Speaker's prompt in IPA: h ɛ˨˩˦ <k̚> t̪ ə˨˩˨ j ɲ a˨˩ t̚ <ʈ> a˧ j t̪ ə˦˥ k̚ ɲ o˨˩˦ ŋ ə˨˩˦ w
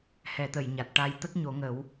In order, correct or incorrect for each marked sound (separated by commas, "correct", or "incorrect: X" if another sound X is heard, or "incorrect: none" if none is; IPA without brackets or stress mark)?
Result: incorrect: none, correct